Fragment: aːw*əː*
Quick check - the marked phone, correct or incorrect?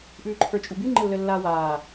incorrect